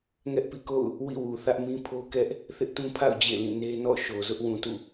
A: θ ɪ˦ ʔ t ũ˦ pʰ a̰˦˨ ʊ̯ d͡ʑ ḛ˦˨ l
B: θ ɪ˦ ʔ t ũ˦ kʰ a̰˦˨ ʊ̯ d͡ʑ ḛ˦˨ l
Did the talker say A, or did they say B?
A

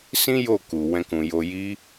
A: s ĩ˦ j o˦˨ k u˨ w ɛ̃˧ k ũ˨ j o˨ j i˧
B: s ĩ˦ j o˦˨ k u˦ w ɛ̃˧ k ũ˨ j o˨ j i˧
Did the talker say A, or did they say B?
A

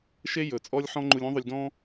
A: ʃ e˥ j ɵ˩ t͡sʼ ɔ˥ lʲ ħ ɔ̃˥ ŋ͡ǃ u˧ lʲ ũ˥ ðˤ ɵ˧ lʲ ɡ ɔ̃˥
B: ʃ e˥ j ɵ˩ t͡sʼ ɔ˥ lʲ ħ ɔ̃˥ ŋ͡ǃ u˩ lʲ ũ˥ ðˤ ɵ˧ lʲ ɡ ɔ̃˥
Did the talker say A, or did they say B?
A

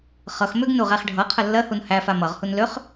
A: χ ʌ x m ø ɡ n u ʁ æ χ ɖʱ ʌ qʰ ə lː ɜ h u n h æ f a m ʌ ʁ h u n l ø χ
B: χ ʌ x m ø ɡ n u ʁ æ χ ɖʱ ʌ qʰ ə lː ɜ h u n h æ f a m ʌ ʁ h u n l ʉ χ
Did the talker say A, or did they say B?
A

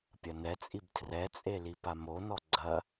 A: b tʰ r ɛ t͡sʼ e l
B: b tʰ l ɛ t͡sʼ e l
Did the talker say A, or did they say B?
A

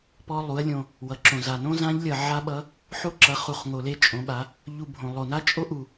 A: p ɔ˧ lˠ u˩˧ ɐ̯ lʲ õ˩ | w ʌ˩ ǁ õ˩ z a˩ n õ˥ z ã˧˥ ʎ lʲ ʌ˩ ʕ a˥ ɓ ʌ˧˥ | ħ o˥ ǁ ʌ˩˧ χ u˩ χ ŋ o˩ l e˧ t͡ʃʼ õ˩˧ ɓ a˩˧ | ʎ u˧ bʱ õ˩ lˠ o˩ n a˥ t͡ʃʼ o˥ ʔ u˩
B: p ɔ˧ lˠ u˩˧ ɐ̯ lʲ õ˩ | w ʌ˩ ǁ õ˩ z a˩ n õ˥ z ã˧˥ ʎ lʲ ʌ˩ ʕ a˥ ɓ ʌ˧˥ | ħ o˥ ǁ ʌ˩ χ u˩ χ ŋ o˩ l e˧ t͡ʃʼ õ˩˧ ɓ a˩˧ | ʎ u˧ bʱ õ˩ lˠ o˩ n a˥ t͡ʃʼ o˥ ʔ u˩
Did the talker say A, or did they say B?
A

